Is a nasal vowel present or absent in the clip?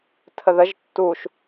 absent